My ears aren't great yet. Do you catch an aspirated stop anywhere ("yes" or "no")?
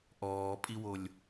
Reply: no